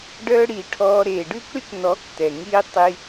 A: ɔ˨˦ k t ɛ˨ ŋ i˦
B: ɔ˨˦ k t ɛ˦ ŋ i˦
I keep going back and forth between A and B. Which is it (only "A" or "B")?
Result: A